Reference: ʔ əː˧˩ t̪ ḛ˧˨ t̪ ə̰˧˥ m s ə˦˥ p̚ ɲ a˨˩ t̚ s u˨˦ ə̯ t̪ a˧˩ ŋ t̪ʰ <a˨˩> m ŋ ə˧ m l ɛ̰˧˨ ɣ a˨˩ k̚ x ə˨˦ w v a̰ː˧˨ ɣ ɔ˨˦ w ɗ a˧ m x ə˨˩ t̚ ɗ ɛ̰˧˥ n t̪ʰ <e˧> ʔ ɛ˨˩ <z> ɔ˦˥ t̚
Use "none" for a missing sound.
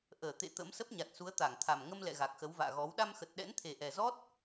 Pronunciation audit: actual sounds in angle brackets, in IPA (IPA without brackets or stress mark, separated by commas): a˨˩, e˨˩, z